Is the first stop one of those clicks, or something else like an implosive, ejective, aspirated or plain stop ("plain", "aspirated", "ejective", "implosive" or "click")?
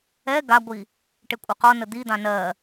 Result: plain